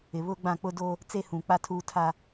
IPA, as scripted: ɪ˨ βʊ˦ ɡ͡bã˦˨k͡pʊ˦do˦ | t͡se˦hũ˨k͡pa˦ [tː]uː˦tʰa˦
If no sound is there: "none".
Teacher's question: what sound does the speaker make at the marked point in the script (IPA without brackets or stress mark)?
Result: tʰ